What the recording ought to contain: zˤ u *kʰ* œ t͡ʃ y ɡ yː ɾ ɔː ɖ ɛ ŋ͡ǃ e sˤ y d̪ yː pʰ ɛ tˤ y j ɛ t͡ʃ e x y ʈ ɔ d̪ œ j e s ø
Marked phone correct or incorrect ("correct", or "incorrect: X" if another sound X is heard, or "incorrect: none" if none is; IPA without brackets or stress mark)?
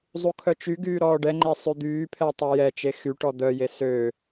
correct